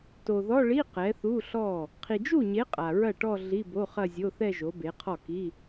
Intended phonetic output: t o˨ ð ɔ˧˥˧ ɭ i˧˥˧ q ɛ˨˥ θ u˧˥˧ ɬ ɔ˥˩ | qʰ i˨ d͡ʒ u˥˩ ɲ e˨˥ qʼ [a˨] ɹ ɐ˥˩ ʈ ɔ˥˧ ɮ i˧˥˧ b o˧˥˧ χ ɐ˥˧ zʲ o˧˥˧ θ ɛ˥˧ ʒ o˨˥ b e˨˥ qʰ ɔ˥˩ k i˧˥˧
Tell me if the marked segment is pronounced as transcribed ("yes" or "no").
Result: yes